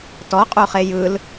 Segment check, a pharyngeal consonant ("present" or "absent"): absent